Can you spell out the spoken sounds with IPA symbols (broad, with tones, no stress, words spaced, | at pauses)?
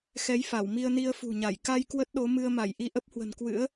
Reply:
xɛ˨˦jfa˧˩wmi˧ə̯ni˧ə̯ fṳ˨˩ɲa˧˩j ka˧j kwə˦˥t̚ɗo˨˦ mɨ˧ə̯ma˧˩j ʔi˧ʔə˦˥p̚hwə̤˨˩nkwɨ̰˧˥ə̯